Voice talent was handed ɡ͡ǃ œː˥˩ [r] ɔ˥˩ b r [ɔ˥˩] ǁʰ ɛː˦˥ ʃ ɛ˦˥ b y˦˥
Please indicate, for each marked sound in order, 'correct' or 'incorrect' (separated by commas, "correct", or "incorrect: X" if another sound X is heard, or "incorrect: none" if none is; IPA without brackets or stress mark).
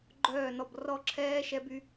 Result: incorrect: n, correct